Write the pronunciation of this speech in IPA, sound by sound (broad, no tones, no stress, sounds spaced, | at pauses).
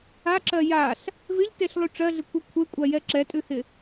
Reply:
a ǁ ɜ j a ɬ | v ɪ ʎ t e ɬ lˠ ʉ ʈ͡ʂ ɜ ɮ ɪ kʷʰ ɜ kʷʰ e kʷʼ a j ɛ ǁ ɛ tʼ ʉ h ɪ